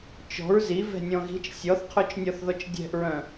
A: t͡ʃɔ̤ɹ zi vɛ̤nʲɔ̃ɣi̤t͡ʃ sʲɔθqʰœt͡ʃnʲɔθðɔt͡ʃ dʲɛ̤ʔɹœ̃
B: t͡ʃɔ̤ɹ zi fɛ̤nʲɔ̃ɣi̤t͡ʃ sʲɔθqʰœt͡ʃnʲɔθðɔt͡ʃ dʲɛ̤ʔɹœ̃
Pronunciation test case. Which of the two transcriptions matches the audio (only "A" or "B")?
A